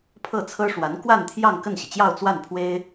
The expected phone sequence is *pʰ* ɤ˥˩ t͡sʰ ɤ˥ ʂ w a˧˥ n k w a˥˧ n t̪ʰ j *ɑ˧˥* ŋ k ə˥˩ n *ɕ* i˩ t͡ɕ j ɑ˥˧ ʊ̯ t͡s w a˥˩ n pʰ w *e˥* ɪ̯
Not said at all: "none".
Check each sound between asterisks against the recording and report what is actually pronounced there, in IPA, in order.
pʰ, ɑ˥˧, ɕ, e˥

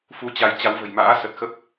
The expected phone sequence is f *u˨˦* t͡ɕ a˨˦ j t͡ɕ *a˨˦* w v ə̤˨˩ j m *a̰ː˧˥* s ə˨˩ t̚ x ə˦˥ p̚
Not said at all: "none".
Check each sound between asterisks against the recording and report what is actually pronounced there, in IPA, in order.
u˨˦, a˨˦, a̰ː˧˥

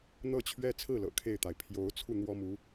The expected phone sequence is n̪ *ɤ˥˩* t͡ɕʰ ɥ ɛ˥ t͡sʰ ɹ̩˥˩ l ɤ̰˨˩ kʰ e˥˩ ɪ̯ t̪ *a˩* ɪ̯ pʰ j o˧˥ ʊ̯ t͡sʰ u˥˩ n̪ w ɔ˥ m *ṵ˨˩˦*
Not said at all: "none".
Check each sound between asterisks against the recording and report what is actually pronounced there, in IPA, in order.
ɤ˥˩, a˩, u˧˥

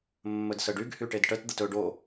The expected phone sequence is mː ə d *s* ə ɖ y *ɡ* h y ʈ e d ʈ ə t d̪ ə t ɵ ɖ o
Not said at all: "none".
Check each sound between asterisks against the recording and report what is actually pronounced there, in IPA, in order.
s, ɡ

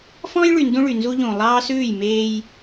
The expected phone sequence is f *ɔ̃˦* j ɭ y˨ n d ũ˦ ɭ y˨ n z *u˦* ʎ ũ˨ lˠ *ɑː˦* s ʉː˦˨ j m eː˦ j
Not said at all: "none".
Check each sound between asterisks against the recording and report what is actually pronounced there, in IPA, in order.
ɔ̃˦, u˦, ɑː˦

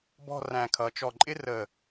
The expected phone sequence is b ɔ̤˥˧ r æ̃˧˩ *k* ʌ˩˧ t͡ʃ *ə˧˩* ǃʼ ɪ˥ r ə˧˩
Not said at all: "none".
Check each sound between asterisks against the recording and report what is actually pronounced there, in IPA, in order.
kʰ, ɔ˧˩

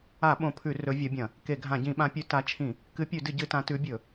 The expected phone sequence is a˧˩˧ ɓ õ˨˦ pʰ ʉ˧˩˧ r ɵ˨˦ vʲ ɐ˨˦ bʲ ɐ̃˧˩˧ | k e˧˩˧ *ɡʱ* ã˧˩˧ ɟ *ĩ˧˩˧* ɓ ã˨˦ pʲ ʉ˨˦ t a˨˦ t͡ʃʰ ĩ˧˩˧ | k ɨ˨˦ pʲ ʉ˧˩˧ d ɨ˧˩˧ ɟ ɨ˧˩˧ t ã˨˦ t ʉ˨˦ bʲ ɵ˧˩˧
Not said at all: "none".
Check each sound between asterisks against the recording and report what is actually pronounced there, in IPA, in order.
ɡʱ, ĩ˧˩˧

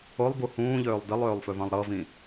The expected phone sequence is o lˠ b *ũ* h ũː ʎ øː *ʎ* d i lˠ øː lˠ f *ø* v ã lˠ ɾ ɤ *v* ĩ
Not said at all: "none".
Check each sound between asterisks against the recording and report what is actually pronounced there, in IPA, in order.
u, lˠ, ø, v

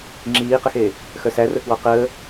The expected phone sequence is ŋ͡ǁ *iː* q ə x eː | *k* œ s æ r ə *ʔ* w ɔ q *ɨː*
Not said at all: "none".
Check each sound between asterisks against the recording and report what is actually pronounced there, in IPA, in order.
iː, x, k, əː

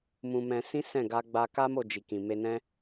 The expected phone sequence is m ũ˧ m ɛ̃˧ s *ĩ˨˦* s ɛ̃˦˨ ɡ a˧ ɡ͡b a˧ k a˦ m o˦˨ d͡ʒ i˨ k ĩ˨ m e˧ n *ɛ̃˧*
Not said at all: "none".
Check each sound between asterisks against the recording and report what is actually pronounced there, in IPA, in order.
ĩ˦, ɛ̃˦

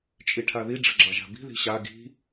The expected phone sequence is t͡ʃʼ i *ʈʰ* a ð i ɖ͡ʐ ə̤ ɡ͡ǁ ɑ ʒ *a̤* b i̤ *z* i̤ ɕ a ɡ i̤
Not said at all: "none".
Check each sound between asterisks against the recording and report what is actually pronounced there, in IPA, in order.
ʈʰ, a̤, ð

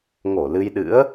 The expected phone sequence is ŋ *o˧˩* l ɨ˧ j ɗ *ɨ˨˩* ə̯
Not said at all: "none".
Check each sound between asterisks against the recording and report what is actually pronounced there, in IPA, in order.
o˧˩, ɨ̰˧˥

